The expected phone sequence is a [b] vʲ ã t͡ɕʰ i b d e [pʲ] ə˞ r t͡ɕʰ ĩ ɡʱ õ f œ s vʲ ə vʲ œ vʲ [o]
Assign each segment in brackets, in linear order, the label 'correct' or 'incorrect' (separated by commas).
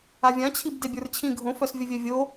incorrect, incorrect, correct